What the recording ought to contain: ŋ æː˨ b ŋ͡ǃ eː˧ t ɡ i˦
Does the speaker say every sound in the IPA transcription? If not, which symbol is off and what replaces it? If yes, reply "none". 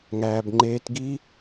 none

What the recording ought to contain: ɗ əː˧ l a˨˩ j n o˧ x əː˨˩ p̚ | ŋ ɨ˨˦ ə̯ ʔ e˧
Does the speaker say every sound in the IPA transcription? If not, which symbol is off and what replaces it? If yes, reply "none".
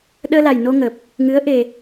x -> ŋ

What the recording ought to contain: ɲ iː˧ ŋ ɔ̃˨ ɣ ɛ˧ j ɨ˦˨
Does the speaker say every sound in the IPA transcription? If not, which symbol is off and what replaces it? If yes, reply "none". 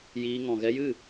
ɲ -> j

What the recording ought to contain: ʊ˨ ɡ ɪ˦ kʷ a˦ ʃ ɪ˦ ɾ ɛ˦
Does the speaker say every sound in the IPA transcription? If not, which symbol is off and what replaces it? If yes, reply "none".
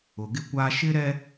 none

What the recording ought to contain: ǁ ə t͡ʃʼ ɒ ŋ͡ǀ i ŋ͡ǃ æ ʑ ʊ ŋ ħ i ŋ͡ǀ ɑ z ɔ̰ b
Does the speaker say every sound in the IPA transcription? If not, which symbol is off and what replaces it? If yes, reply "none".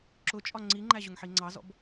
ə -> ʊ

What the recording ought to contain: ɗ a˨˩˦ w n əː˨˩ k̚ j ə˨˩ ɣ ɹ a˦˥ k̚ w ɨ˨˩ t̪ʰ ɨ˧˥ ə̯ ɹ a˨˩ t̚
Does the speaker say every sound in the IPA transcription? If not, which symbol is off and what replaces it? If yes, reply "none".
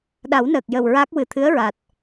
ɣ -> w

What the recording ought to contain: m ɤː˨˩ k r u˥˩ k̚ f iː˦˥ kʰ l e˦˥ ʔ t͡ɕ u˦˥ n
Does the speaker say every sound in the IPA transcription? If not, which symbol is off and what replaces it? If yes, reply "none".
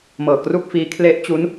none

